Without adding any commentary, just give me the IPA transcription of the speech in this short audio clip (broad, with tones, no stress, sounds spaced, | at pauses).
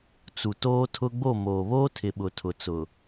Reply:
t͡s u˨ t oː˦ tʰ ʊ˦ ɡ͡b o˦˨ m oː˨ β oː˦ tʰ ɪ˨ ɓ ʊ˨ tʰ ʊ˨ t͡s ʊ˨